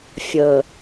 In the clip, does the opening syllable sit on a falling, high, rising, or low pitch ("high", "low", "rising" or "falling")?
low